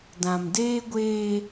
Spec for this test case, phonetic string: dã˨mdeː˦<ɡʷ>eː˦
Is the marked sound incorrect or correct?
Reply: correct